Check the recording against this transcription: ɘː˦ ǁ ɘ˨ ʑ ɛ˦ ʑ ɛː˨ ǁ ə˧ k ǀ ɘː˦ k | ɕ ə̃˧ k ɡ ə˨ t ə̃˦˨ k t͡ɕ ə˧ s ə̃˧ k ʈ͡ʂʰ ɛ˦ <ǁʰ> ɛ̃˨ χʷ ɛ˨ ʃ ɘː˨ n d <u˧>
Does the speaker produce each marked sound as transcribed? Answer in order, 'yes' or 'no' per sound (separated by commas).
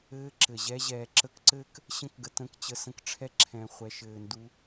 yes, yes